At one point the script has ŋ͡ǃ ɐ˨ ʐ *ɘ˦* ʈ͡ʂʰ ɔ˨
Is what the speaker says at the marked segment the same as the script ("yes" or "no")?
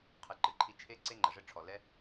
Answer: yes